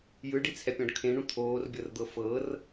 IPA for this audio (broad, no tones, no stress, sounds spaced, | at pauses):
j ɯ ɖ i t͡sʰ ɛ pʲ ɔ̃ ɖ kʰ ẽ ɳ ũ t̪ʰ oː r bʲ ɤ r d̪ ɤ f ɤ r